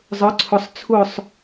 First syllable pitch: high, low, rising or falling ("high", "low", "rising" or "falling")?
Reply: rising